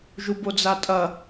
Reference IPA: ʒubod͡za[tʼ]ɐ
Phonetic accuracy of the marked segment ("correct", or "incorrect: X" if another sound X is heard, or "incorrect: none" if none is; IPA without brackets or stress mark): correct